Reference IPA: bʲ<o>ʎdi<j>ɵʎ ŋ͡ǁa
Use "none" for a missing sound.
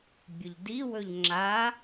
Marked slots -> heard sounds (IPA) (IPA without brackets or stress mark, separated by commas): ɵ, w